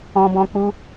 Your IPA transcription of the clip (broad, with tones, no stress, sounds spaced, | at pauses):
ɔ̃˧ b ɔ̃˧ k͡p u˧